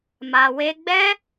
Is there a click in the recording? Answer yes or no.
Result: no